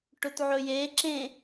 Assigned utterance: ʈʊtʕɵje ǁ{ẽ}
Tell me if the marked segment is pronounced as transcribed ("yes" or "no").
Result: yes